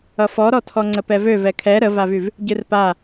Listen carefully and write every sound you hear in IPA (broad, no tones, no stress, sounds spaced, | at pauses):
ʌ f ɔ ɾ ɔ tʰ ɔ ŋ͡ǀ ə p ɛ v ø v ɛ kʰ ɛ ɾ ə v a v y v | ɟ ɨ r p a